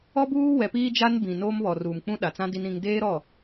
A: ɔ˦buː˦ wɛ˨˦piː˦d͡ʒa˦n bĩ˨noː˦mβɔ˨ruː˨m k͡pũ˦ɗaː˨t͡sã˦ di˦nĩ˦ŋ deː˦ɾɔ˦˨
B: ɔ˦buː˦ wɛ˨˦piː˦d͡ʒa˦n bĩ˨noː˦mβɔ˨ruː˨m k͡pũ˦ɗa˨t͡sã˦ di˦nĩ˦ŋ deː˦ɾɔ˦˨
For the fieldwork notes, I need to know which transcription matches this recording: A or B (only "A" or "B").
B